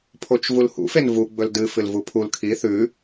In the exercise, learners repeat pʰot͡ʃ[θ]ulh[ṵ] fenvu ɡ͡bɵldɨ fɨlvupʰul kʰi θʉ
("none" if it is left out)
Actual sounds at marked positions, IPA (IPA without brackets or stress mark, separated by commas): v, ṵ